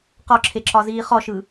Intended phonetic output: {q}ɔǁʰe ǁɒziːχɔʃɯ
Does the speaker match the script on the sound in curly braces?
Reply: yes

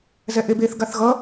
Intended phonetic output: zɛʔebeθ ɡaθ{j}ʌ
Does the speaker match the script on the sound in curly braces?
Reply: no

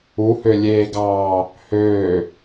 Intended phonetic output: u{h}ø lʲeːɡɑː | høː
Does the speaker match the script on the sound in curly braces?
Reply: yes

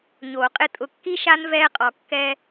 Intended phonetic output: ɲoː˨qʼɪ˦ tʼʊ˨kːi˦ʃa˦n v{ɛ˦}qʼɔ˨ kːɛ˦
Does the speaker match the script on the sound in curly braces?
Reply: no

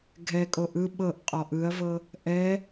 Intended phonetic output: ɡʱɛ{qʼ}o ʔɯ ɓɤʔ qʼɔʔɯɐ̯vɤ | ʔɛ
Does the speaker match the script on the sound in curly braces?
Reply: no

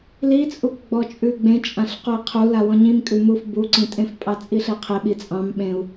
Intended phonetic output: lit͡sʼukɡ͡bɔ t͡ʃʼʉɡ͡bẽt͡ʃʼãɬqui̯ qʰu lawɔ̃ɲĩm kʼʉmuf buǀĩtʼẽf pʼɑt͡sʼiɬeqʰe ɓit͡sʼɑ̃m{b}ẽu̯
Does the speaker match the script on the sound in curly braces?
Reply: no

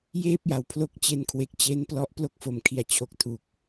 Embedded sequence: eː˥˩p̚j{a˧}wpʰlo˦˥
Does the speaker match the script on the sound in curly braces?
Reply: no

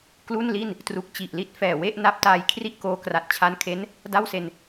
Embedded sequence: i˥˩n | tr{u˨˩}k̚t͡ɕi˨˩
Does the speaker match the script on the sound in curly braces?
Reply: yes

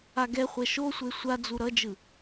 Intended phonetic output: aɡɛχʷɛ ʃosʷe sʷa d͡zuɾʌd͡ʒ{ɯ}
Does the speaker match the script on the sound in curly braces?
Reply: yes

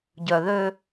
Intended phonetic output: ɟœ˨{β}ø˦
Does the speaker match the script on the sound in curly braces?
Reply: no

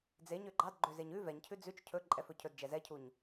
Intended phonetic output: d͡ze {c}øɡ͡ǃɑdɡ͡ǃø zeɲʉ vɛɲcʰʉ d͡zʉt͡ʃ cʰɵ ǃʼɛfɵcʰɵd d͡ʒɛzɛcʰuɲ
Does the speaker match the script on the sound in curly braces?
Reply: no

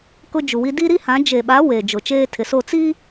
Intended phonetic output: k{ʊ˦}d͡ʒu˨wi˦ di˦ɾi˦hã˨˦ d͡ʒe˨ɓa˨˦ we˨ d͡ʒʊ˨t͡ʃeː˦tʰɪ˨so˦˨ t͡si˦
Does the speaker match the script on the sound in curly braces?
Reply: yes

